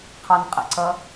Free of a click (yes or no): no